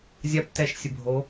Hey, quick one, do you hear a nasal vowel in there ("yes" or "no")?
no